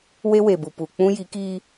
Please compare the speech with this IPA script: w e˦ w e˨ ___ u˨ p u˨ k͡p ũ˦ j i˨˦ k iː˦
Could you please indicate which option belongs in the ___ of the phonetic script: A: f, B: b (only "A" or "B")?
B